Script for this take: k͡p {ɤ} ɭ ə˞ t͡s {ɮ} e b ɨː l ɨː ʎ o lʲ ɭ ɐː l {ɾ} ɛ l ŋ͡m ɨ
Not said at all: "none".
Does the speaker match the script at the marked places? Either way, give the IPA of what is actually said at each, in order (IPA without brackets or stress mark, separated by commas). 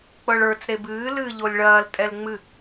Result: ɤ, ɾ, tʼ